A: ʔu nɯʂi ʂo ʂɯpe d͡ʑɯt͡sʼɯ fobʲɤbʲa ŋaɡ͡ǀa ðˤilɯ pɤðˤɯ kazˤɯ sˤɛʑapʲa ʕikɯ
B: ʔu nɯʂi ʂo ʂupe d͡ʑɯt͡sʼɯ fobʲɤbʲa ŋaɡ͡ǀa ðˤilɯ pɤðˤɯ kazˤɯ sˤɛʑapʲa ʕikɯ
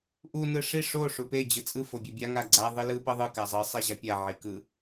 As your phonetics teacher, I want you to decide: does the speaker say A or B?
B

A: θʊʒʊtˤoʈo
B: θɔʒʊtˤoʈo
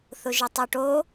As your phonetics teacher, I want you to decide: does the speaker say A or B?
A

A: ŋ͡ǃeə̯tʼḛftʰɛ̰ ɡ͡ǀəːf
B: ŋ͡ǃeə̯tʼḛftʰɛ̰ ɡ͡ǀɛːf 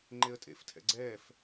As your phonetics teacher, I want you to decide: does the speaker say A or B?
B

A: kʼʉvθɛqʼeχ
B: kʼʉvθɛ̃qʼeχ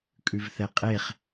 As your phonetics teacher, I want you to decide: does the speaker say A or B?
A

